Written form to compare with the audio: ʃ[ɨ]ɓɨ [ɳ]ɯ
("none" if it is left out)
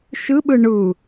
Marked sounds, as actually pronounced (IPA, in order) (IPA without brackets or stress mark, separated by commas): ɨ, ɳ